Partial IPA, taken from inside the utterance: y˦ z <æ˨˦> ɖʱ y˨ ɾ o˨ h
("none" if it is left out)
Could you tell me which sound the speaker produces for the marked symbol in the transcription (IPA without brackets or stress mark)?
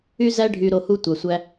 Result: æ˦